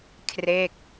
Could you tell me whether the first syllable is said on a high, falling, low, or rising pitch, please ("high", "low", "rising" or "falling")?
falling